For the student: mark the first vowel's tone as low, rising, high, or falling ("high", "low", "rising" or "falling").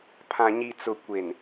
low